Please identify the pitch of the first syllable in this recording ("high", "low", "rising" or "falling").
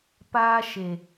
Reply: high